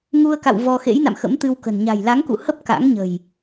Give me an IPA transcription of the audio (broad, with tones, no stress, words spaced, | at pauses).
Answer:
ŋu˧ə̯ka̰˧˨w vɔ˧ xḛ˧˥jna̰˧˨m xə̰˧˥mt̪ɨ˧wkə̤˨˩n ɲa̤˨˩jla˨˦ŋkṵ˧˨hə˦˥p̚ ka̰˧˥ŋɲə̤˨˩j